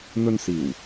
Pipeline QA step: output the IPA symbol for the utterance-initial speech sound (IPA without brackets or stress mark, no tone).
n̪